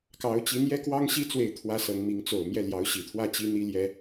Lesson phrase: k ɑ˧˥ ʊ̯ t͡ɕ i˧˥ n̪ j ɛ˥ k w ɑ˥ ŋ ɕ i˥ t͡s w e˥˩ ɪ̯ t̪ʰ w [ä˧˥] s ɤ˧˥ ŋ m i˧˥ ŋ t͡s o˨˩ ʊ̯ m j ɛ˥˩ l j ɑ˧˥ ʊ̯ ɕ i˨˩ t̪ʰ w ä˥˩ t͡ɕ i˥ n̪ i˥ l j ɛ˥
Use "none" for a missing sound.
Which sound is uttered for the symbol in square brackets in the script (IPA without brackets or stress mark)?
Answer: ä˥